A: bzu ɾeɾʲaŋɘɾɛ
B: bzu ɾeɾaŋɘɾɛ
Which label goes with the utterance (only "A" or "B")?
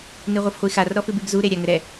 A